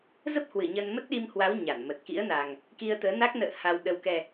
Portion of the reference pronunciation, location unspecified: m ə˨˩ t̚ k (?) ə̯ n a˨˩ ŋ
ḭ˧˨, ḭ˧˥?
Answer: ḭ˧˥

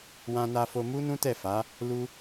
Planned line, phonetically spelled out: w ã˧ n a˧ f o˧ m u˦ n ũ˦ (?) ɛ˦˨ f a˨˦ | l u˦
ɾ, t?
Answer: t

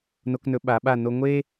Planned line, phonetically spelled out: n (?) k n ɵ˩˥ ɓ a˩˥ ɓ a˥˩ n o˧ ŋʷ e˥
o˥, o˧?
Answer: o˧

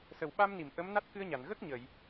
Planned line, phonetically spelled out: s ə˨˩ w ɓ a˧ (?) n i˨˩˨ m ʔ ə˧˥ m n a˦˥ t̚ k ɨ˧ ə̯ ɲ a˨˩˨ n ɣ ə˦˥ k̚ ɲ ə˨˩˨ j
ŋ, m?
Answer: m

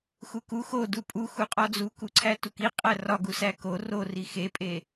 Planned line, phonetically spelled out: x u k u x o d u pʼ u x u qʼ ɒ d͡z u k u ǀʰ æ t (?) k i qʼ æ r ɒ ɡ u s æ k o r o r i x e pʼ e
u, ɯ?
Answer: u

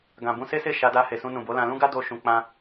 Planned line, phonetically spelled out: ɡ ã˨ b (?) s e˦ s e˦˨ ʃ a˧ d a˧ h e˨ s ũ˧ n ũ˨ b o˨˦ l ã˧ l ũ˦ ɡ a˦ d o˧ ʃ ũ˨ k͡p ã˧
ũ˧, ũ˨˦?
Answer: ũ˧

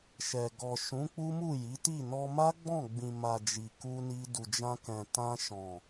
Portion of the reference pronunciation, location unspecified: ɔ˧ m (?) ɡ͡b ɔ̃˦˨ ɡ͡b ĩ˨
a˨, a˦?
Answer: a˦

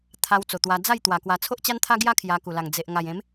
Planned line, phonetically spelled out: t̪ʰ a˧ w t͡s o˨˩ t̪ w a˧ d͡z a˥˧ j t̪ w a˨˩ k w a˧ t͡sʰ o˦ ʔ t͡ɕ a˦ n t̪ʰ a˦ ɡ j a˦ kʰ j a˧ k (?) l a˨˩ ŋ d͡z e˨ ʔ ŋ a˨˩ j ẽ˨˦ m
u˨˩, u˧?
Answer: u˨˩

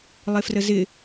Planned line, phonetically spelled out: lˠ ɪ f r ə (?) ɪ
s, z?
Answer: z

